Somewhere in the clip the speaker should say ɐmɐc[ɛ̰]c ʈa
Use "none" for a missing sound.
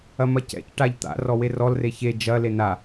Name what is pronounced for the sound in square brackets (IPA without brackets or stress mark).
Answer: ɛ̰